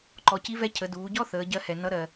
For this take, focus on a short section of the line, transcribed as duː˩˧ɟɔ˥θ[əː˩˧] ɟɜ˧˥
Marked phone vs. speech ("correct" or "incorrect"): correct